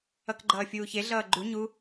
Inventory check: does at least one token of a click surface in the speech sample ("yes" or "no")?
yes